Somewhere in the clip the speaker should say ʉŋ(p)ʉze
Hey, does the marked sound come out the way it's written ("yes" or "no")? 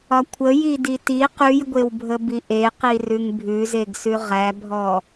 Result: no